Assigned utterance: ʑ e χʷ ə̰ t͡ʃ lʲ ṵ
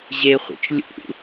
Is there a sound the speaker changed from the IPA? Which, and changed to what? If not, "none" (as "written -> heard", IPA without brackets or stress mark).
none